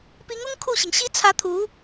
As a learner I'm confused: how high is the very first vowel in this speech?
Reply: high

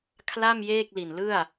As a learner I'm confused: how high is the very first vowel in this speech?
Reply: low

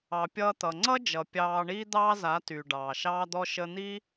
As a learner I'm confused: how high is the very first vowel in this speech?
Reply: low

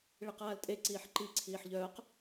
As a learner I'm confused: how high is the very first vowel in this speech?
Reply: mid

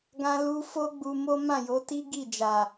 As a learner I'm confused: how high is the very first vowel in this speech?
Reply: low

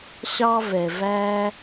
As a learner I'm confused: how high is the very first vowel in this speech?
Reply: low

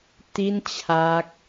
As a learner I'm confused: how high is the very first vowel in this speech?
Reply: high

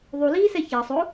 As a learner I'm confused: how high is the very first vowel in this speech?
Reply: high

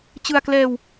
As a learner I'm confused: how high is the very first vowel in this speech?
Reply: high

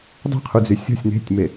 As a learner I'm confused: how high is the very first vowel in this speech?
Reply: mid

